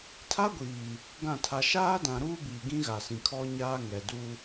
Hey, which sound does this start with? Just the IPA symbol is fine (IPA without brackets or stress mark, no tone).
tʰ